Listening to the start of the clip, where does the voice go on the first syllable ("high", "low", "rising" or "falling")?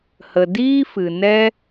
low